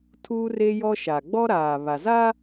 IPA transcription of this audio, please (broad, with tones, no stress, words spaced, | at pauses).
tʰuː˦re˦jɔ˦ʃa˨ ɡ͡bɔ˦ ɾaː˨βa˨ za˦